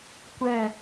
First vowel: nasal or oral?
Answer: oral